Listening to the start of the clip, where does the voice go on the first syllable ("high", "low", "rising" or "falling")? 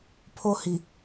high